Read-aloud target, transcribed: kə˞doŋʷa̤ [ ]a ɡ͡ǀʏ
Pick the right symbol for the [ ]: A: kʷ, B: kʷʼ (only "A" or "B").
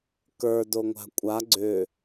B